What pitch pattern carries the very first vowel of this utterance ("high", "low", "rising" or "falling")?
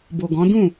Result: low